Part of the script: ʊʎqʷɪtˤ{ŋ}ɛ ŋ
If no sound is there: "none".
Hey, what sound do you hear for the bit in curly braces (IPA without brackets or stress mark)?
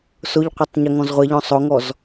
ɲ